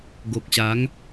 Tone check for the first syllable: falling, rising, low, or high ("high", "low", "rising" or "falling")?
low